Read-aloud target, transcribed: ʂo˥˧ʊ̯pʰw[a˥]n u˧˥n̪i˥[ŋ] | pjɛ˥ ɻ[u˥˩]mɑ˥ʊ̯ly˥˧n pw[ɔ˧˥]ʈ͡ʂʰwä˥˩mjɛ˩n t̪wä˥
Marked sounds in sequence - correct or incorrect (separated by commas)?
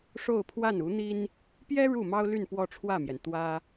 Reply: incorrect, incorrect, correct, incorrect